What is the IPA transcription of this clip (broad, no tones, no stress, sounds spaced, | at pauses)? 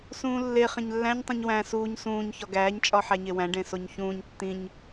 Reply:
s ũː lː e χ ẽ ɲ lː æ̃ ɲ tˤ ũ ɲ w æ̃ s uː ɲ s ũː ɲ ç ɒ ɡ æː ɲ t͡ʃʼ ɒ ħ æ ɲ e w æ̃ ɖ ẽ s o ɲ ç ũː ɲ tː ĩ ɲ